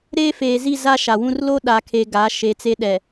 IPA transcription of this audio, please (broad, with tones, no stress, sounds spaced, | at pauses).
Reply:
ɾ eː˦ f eː˨ z i˦˨ z a˦ ʃ a˨ w ũ˦ r l o˦ ɗ a˨ kʰ e˨ ɡ a˨˦ ʃ e˨˦ t͡s e˦ ɗ ɛ˨